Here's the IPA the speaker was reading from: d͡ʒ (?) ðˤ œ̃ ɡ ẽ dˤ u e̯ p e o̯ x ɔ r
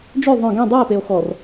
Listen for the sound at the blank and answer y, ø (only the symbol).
ø